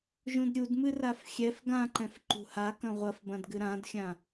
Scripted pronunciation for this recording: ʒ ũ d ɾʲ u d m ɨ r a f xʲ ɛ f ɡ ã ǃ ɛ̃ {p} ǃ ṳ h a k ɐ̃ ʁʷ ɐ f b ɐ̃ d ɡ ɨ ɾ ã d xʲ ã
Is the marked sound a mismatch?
yes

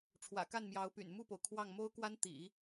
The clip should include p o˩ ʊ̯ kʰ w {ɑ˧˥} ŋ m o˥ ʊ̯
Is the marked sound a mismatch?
yes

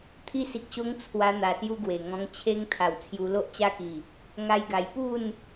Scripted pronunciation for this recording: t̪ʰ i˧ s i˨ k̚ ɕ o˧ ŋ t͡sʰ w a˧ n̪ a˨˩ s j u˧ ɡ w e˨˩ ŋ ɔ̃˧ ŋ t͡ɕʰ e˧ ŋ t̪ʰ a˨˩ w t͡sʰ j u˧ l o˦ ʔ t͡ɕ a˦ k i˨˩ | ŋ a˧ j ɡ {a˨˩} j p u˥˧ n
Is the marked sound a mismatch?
no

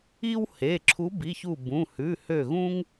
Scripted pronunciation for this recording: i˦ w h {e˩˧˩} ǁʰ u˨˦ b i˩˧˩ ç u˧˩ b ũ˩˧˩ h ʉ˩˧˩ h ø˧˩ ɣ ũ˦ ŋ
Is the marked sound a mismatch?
no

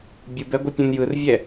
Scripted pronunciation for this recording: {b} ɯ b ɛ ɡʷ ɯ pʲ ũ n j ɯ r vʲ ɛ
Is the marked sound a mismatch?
yes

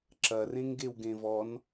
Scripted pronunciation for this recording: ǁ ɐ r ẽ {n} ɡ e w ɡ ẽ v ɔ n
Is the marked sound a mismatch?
yes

